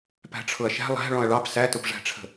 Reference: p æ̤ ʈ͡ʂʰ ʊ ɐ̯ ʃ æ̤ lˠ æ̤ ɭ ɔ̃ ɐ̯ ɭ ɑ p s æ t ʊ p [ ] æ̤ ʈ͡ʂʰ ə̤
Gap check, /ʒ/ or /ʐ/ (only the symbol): ʐ